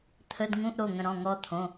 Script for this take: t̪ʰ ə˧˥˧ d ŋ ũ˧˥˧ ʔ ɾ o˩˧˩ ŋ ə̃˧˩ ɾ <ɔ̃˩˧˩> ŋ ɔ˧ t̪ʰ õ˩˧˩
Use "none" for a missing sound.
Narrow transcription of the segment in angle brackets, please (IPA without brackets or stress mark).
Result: ɔ̃˩˧˩